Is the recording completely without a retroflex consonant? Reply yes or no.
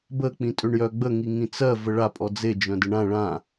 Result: no